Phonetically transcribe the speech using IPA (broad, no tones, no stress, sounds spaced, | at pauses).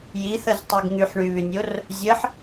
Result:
j i θ ə z tˤ i ɡ ŋ y ħ ɳ y β y nʲ o r | zʲ ə ħ